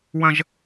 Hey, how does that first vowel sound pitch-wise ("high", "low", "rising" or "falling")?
high